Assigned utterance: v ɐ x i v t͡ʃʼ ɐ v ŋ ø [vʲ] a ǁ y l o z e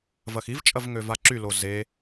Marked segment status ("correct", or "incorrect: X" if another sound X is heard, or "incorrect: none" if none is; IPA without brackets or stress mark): incorrect: v